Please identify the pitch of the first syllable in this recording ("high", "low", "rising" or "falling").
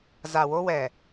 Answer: low